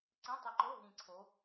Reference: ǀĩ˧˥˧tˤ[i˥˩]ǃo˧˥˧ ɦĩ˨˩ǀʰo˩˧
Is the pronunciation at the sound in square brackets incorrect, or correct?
incorrect